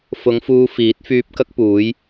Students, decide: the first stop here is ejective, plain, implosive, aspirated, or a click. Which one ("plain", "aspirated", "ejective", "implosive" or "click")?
plain